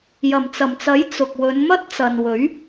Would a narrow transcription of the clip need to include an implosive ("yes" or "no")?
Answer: no